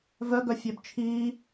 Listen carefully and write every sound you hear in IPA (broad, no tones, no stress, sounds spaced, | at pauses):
v œ ɡ œ fʲ œ b t͡ʃʰ iː